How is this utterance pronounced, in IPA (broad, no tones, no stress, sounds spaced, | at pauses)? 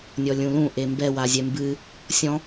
nʲ ɔ lʲ ũ l ũ ʔ e m b ɛ w a zʲ ɛ m b ɨ | sʲ ɔ̃